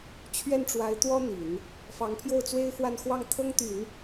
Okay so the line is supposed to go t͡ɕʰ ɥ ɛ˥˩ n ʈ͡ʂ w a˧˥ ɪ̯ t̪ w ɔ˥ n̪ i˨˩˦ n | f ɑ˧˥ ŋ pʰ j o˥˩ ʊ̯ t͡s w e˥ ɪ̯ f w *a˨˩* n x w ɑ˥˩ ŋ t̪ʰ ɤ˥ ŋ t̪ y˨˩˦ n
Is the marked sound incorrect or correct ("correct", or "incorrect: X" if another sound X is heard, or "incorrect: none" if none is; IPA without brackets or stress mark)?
incorrect: a˥˧